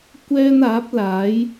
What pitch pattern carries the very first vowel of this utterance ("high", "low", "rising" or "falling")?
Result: high